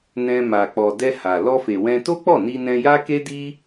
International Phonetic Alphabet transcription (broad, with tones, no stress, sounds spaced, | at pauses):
n ɛ̃˧ m a˨ k͡p ɔ˨ d ɛ˧ h a˨ l ɔ˧ f e˨ w ɛ̃˧ t o˦ k͡p ɔ˦˨ n i˧ n ɛ̃˧ j a˦ k e˦ d i˦